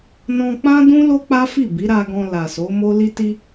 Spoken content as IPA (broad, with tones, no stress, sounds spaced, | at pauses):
n ɔ̃˧ k͡p ã˦ d ũ˦ l o˦ k͡p a˦ f i˦˨ b i˨˦ ɾ a˧ ɡ ɔ̃˧ l a˨ s o˨˦ m o˦ l i˦ t i˦